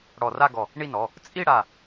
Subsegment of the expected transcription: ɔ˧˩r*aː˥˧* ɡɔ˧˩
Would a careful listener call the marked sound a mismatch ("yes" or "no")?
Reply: yes